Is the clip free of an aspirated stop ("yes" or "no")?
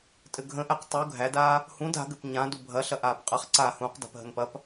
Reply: yes